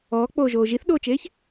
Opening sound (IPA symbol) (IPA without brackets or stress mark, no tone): ɔː